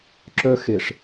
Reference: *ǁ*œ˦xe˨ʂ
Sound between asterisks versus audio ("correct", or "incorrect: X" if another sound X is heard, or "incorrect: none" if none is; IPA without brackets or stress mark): correct